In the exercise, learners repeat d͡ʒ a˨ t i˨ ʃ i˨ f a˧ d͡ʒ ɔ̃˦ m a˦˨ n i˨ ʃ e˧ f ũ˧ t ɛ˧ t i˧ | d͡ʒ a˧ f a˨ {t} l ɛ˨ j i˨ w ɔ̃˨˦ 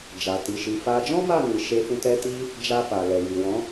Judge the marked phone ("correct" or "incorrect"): incorrect